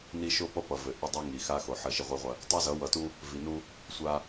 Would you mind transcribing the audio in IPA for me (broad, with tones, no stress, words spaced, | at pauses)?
ni˦ ʃo˦pʌ˦ pʌ˨vɘ˨ ʔɐ˦dˤæ˦ ŋi˨xa˦ xo˨ ħɐ˦˨ʃi˦ʁʷi˦ʁʷɐ˦ | tˤi˦zʌ˨˦ wʌ˨tu˦ | vi˨nu˦ | sʷa˦